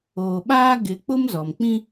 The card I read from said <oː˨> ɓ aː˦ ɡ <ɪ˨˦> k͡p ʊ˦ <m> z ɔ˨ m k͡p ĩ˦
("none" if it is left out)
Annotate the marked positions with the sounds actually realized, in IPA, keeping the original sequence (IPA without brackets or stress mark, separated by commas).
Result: oː˨, ɪ˨˦, m